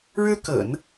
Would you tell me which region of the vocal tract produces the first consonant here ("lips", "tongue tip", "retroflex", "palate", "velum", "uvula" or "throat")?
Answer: retroflex